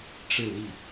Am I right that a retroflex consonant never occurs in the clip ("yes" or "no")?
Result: no